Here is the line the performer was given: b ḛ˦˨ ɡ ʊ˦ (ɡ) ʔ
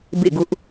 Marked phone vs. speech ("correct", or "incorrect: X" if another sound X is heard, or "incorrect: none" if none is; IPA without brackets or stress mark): incorrect: none